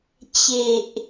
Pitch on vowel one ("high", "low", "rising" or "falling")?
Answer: low